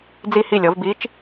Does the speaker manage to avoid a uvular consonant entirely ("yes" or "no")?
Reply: yes